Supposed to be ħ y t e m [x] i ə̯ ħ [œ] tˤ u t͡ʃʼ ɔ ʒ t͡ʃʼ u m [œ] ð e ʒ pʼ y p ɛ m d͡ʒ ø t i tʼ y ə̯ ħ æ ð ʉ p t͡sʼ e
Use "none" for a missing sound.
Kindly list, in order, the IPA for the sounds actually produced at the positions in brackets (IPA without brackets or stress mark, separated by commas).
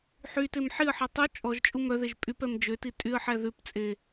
ħ, ɛ, œ